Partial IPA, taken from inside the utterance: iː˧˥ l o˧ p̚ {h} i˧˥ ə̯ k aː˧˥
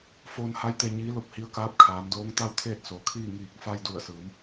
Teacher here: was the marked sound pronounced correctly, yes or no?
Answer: yes